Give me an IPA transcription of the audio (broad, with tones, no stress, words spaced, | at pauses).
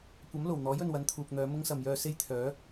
kʷɐ˨˥mlo˨˩wn̪ɔː˨˥j ɵ˨nwɐ˨˥nt̪ʰuː˨k̚n̪œː˨˧ mʊ˥ŋsɐ˨mjœː˧ se˥jt̪ʰœː˨˥